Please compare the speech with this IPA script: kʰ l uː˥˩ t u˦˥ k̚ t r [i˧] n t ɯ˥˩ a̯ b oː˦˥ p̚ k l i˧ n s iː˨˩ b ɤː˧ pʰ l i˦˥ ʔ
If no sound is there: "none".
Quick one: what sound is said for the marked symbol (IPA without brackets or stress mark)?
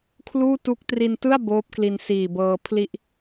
i˧